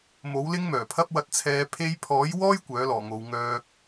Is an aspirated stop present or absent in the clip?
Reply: present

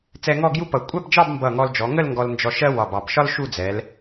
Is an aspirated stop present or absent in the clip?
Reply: absent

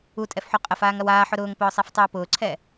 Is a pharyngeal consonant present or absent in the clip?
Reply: present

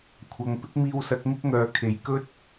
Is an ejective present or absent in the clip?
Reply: absent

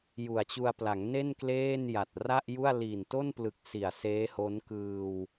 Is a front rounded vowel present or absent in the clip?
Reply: absent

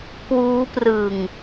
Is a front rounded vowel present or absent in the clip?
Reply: absent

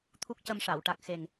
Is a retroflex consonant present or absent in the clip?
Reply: present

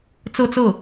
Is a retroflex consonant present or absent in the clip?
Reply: absent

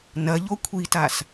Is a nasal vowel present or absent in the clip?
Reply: absent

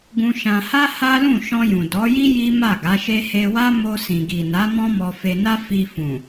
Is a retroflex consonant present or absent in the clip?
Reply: absent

